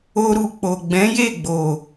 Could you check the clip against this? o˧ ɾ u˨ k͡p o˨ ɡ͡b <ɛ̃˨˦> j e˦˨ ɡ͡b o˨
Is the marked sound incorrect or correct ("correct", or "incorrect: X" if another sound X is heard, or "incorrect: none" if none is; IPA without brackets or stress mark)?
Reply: correct